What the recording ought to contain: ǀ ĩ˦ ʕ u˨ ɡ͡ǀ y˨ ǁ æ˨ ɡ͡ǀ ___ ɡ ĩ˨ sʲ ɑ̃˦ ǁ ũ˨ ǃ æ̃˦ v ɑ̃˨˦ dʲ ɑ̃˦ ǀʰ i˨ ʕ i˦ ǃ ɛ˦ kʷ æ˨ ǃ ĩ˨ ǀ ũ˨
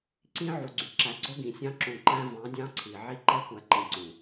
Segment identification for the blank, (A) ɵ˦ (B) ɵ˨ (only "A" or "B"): A